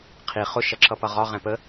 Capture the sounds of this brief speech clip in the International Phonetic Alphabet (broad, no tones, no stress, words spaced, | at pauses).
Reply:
qʰi χʊ ʃʌǁʌpʌʁɒ ʁɛ̃pə